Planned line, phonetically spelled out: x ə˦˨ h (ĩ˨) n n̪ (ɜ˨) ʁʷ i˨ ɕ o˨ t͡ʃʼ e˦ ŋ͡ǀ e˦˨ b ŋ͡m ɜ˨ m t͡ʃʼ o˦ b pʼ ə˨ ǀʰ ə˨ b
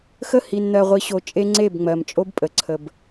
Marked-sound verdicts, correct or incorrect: incorrect: i˨, correct

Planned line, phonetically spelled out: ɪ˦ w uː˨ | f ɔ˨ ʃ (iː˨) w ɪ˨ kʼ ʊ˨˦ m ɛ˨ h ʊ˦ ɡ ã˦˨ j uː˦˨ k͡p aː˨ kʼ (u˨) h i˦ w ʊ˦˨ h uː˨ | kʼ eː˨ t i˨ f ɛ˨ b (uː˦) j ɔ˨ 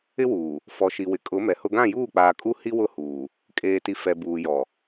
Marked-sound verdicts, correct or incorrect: incorrect: i˨, incorrect: u˦, incorrect: uː˨

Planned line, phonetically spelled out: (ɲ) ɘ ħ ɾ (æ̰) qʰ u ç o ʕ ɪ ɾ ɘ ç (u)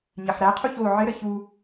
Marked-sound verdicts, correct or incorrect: correct, incorrect: æ, correct

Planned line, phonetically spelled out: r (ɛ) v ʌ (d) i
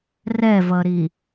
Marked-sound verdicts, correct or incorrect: correct, incorrect: ɾ

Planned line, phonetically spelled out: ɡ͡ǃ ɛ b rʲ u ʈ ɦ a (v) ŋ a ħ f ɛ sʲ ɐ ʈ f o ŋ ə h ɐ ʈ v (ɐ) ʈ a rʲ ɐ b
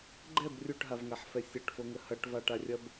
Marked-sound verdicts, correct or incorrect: correct, incorrect: a

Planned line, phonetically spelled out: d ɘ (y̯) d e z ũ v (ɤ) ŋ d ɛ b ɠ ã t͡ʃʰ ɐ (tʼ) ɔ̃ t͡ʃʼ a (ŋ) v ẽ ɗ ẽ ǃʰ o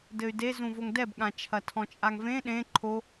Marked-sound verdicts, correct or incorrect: correct, incorrect: o, incorrect: tʰ, correct

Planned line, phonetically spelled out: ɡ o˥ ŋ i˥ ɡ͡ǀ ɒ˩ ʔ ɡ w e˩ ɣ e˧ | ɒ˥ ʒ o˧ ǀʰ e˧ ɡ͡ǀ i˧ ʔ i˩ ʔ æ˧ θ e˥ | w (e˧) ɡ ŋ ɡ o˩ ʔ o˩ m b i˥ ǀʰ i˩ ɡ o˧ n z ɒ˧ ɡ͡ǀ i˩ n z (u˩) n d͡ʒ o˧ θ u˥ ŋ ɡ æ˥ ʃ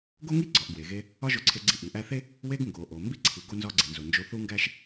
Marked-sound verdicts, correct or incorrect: correct, incorrect: o˩

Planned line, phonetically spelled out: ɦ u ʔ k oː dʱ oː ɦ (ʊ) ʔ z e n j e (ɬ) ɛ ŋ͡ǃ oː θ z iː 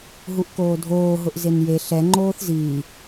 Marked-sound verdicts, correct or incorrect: correct, correct

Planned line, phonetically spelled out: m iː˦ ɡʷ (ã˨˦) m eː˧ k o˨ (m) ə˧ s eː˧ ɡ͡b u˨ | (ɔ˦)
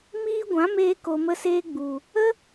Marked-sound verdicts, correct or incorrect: correct, correct, incorrect: ə˦

